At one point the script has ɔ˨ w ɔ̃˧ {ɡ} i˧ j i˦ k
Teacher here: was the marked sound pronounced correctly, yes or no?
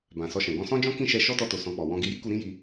yes